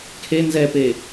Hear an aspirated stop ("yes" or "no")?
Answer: yes